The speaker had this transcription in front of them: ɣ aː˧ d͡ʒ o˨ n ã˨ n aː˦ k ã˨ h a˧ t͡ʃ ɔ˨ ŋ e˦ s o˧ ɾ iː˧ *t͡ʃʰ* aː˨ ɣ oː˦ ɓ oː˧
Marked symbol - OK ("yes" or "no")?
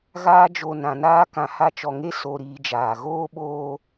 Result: no